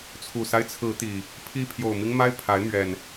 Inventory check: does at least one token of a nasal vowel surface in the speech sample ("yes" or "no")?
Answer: no